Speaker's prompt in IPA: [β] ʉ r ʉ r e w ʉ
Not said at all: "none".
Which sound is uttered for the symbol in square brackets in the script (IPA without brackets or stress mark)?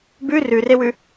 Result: b